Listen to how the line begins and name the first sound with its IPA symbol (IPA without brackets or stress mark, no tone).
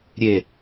ɾʲ